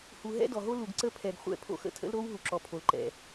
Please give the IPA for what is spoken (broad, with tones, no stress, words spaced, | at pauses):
hu˨ɦɛ̰˦dɔ˨ɦo˦ lu˨ɡ ǀə˦pʰɛ˨ɡ χʷɛ̰˦˨pʰo̰˦xə̰˦ tʰə̰˦lɾo˦w ɦu˨ǁɔ˨pʰo˨lǃɛ̰˨